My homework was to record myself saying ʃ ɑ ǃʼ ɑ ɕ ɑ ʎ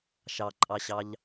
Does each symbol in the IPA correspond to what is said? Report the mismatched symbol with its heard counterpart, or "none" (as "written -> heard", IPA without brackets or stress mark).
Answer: none